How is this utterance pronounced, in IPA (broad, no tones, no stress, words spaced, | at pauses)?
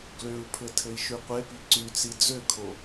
ɡløu̯pʰɘ tʰɘi̯ʃʉqʷepi ǀyt͡si d͡zøkʰo